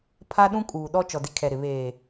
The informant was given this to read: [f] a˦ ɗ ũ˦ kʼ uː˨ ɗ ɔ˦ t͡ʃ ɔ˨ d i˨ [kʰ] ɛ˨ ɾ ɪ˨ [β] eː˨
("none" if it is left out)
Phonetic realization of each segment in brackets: pʰ, kʰ, β

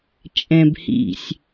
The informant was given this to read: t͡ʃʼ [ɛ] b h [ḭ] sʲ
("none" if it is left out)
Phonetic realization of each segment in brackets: ɛ̃, ḭ

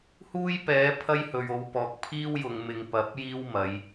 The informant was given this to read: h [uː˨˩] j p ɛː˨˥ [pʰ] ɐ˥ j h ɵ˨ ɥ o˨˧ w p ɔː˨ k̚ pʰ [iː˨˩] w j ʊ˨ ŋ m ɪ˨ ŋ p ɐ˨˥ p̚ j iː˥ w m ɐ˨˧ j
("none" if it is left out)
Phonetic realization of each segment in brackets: uː˥, pʰ, iː˥

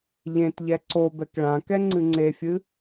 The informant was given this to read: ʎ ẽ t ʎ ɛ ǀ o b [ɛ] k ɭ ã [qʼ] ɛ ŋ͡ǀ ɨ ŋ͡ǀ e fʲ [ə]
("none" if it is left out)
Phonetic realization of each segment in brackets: ɛ, k, ɨ

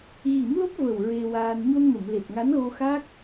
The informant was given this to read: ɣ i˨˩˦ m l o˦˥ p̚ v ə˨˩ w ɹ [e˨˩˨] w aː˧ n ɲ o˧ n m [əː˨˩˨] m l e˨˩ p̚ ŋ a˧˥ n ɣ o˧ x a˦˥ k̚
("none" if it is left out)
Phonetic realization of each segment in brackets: e˧, ə˨˩˨

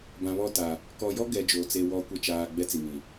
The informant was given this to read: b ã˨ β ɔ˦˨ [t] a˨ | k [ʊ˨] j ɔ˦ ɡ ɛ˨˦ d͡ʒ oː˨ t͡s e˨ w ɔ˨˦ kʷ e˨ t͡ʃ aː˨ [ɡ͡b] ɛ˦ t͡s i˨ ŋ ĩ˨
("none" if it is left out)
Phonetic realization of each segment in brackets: t, ɔ˨, ɡ͡b

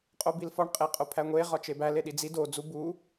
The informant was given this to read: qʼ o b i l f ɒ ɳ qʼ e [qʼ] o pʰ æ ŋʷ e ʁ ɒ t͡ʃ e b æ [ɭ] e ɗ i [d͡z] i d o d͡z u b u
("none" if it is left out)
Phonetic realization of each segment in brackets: qʼ, l, d͡z

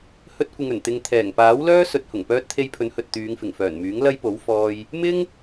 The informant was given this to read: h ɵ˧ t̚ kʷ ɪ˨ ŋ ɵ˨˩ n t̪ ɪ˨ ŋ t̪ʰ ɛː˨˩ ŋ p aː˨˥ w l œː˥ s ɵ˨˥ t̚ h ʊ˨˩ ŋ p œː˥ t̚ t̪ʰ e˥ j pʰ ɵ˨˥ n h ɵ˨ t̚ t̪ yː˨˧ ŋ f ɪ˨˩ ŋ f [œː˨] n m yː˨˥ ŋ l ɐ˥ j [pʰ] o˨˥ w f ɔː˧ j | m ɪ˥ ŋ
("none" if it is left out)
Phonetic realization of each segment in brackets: œː˨˩, p

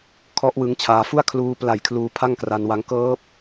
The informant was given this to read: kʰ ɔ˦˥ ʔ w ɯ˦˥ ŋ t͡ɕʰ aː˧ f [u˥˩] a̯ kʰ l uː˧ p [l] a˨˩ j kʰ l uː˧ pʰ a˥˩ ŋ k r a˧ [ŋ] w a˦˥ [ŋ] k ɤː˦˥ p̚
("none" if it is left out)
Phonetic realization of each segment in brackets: u˥˩, l, n, ŋ

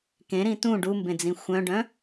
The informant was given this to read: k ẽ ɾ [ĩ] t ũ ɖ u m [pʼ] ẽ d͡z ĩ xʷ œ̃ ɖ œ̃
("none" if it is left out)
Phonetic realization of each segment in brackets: ĩ, b

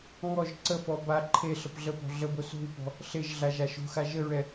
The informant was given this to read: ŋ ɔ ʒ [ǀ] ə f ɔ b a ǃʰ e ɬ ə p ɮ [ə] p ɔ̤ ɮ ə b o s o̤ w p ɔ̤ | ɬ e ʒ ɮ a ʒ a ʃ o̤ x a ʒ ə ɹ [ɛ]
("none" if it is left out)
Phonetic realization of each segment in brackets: ǀ, ə, ɛ

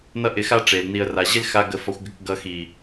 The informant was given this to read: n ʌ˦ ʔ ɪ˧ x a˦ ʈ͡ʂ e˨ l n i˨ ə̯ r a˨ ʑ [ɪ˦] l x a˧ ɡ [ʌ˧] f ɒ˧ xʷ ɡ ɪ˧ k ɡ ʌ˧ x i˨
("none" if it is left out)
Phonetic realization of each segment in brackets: ɪ˦, ə˧

